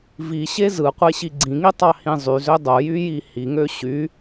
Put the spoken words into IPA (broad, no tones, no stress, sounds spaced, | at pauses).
v i ɕ e z ɯ qʷ e ɕ i ɡ͡ǀ ĩ ŋ i tˤ ɑ h ĩ zˤ y z ø dˤ o j y j i h i ŋ ø ɕ y